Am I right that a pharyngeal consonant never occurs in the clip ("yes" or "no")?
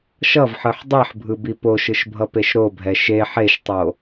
no